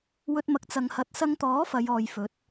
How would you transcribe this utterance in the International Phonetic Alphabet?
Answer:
wɵ˧t̚mɐ˨k̚t͡sɐ˨ŋ hɐ˨t̚sɐ˧ŋt̪ɔː˨˥ fɐ˨˧jɔː˨jfɵ˨˥t̚

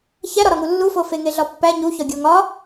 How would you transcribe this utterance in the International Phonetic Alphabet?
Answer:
çæɾɒɾɒŋu lːufo feŋeɮɒpːæ ɲuçɒ ɡʲoŋɒ

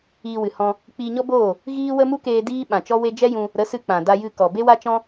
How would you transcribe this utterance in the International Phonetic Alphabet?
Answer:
iː˧wɨ˨hɔ̃˧ | k͡pi˧ɲɔ˦boː˦˨ | ɣiː˦wə˦ mu˦keː˧ diː˦ɓã˨t͡ʃɔ˦we˦ d͡ʒɛ˦jũ˧ | ɾə˨˦sɨ˧ k͡pã˨da˧jɨ˧kɔ˨ be˦wa˦t͡ʃɔ̃˦

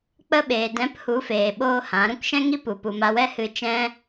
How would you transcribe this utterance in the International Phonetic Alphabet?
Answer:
k͡pə˧ɓeː˨dɛ̃˨˦p hu˨˦feː˨ɓoː˧ hã˨˦ɾũ˧kʃɛ̃˦ŋi˦ pu˨pu˨ma˧ wɛ˦hɨ˧ t͡ʃɛ̃˦

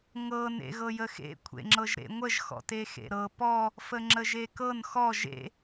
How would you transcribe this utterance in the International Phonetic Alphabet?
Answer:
ŋɤn ḛɣɤjəxḛ kʷʰḛŋ͡ǁɤʒɾḛŋʷəʒ xɔ̰texḛɾɤ pɔ | fəŋ͡ǁəʒekɤn xɔ ʒḛ

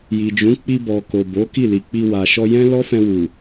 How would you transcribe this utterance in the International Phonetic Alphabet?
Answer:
ji˨d͡ʒũ˨˦ k͡pi˧bɔ˨ ko˨bo˨˦ ki˦˨li˨k͡pi˧ wa˨ʃɔ˧jɛ̃˦ lɔ˦fɛ̃˧wu˨

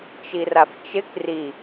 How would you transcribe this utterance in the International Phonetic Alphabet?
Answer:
t͡ʃiraft͡ʃɪk ri

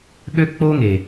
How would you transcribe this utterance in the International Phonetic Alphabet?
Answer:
ɠø˦k͡po˦ŋe˨

